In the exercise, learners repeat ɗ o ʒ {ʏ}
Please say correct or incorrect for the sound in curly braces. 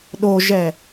incorrect